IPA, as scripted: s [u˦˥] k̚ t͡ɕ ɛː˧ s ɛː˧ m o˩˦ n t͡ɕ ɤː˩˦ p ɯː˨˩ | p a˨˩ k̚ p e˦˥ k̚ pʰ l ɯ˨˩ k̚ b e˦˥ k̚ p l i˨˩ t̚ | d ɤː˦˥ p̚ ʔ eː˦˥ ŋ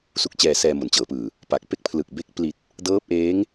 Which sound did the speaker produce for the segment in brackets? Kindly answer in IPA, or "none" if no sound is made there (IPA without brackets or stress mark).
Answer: u˦˥